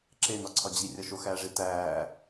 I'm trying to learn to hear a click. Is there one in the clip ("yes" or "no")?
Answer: yes